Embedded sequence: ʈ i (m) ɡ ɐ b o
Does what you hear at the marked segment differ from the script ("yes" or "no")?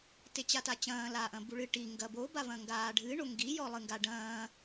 yes